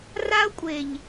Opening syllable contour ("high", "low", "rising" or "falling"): high